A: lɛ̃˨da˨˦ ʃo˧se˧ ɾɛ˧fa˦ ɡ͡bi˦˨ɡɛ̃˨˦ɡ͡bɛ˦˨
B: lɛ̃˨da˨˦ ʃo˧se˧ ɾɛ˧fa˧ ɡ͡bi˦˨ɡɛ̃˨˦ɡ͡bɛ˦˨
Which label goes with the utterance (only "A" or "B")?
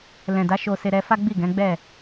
A